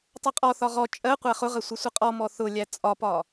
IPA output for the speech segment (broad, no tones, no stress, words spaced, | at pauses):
tˤʌqʼɔθɒ ʁɔ t͡ʃʼɜ qʷæχʊʁə sʷəsʷəqʼɔmɔ θʊlʲæ t͡sʼɒpɒ